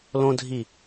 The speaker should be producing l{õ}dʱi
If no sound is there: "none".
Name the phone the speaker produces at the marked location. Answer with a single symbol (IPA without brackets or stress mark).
õ